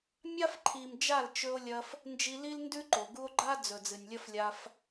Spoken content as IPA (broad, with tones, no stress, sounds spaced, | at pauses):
mʲ a˦ f ǃʰ i˨ m d͡ʒ a˦˨ l t͡ʃ ɵ˧ o̯ lʲ ɐ˧ f | n d͡ʒ i˧ l i˦ l n d ʉ˦ ǃ o˨ ɡ u˧ o̯ ɡ͡ǃ a˦ d͡z ɵ˨ d͡z ɨ˨ nʲ lʲ ɐ˦ f lʲ a˦ f